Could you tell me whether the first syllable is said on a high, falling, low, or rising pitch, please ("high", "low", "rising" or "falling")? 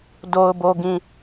low